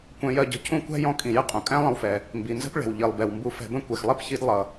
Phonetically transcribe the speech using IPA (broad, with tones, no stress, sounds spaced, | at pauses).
kʷ ɛ̃˧ j ɜ˧ ɟ ə̤˧ cʰ ũ˥ kʷ æ̤˥ j ɔ̃˧ kʼ ĩ˩ j ɪ˥ qʼ ũ˩ kʼ æ̃˥ lˠ ə̃˧ w f ɛ˩ | m b i˩ n z ə̤˥ p ɭ ɛ̤˩ w ʎ i˩ lˠ b ɛ˩ w m b u˧ f ɛ̤˧ b ə̃˥ kʷ ɛ˩ x lˠ ɛ˥ p ç i˧ d lˠ ʌ˩